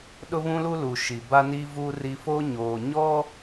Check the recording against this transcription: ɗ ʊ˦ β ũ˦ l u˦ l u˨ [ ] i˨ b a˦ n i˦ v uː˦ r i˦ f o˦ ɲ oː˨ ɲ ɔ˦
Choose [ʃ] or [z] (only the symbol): ʃ